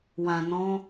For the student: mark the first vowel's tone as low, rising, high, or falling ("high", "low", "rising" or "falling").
low